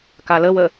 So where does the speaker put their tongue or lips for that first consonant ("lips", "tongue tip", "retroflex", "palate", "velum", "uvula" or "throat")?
velum